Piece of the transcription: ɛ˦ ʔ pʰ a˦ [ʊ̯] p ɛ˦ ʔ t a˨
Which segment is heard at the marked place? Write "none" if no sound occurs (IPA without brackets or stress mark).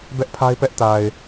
ɪ̯